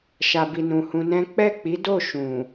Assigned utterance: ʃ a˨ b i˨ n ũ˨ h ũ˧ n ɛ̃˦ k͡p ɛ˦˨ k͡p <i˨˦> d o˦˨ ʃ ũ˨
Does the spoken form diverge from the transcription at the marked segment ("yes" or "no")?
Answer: no